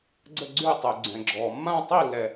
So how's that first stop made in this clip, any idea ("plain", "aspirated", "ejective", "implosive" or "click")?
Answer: click